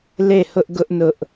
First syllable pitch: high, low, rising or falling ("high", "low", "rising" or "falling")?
falling